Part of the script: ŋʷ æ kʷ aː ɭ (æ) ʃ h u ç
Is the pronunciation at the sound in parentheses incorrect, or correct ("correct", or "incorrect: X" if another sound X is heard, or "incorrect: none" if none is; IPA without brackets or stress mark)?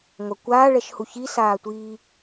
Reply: incorrect: ɛ